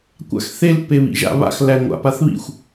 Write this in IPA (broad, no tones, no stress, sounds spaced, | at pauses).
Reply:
kʷ a̰ x θ e l p e β ḭ ʒ a̰ β a̰ x l æ ŋʷ a̰ p a θ β ḭ xʷ